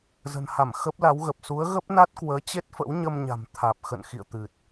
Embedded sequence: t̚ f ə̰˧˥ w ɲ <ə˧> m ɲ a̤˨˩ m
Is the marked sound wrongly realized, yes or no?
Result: no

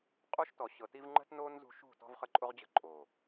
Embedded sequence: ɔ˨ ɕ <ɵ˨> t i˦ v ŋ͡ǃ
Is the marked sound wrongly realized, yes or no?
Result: yes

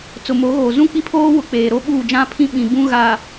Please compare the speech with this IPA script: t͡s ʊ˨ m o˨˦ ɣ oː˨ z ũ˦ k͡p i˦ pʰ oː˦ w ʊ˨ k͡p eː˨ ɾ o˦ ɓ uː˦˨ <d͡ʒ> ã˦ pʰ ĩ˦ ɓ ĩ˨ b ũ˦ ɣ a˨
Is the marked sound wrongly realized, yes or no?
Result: no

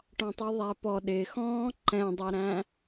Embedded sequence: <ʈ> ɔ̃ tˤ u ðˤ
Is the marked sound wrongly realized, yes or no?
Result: no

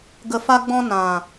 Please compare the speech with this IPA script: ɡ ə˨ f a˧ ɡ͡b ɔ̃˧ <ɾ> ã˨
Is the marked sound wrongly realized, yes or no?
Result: yes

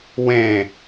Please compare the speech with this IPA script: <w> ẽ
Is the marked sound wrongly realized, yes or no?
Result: no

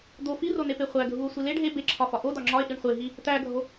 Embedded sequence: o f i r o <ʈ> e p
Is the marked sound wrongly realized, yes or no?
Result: yes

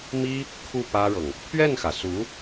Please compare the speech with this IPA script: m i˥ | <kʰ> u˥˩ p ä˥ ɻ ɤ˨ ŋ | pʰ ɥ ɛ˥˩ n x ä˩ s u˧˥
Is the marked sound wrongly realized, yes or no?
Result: no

